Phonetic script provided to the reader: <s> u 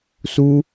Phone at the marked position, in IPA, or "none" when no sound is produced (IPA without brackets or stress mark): s